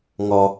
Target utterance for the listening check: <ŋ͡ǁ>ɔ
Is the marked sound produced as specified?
no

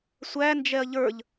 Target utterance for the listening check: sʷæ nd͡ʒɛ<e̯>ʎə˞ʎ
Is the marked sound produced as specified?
no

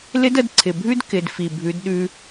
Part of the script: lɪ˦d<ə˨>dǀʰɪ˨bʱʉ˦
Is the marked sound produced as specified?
no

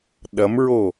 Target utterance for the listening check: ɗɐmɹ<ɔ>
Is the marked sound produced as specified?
no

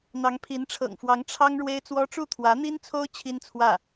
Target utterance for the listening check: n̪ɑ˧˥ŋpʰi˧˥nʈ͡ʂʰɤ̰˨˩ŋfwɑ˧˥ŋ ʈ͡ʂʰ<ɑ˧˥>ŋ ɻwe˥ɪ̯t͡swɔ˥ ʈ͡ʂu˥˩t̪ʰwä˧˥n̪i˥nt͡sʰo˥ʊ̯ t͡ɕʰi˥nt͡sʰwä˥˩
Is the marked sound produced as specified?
no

